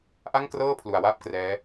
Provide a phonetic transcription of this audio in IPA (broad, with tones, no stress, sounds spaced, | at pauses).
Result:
ʔ a˥˩ ŋ k r ɤː˥˩ pʰ l u˨˩ a̯ w aː˥˩ p̚ k r ɛː˦˥